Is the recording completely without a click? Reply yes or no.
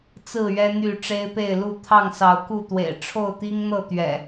yes